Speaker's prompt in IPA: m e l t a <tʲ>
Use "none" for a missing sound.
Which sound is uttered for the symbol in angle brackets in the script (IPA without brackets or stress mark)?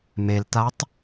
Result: tˤ